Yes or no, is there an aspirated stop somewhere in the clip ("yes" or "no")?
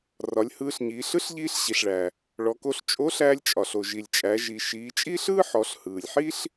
no